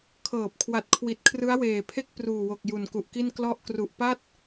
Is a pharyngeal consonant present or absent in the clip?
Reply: absent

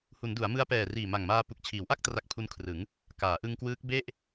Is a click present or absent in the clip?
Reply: absent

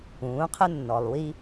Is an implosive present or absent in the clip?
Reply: absent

